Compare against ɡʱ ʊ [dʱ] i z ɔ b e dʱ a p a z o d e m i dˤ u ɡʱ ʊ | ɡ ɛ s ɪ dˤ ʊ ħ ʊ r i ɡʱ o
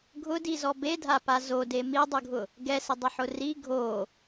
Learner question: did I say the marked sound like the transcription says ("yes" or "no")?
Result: no